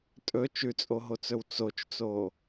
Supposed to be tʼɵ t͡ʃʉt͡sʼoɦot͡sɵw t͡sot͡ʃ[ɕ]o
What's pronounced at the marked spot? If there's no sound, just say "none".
t͡s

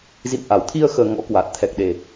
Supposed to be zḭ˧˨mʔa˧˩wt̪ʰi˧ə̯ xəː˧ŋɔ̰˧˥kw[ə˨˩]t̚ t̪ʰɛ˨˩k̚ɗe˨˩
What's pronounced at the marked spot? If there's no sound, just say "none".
a˨˩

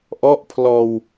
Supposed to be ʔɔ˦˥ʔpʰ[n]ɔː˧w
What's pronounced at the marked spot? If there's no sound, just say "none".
l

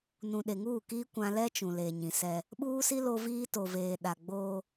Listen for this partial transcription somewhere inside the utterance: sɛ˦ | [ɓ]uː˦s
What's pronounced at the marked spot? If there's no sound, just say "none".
ɓ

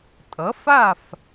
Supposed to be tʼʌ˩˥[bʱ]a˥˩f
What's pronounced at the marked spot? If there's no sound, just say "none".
f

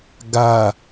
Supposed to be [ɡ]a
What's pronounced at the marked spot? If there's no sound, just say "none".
ɡ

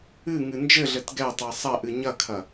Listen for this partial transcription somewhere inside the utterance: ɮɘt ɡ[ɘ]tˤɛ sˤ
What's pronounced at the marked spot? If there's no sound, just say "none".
ɛ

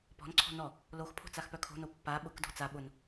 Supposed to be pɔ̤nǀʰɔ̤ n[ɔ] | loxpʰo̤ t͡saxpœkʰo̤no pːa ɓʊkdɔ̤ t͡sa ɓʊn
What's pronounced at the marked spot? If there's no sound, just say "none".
ɔ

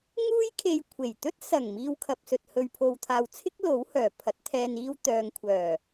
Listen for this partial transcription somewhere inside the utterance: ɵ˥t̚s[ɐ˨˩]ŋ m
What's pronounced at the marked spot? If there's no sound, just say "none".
ɐ˨˩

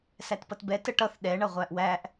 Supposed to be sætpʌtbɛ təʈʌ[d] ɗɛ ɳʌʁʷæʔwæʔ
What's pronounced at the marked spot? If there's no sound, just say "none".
θ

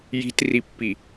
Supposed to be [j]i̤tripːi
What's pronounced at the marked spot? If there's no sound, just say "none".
j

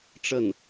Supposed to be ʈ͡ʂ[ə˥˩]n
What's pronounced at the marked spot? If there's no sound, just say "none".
ə˥˩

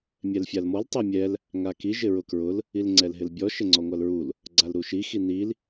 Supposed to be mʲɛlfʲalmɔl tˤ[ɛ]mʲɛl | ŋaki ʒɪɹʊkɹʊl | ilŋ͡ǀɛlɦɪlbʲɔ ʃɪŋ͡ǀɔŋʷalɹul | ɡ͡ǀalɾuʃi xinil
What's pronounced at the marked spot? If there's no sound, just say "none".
ɛ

